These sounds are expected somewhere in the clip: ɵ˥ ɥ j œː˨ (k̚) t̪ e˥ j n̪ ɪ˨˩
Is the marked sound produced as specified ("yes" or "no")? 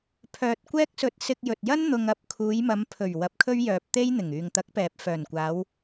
no